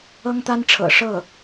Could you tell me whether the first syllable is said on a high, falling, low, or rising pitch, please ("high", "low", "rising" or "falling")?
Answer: high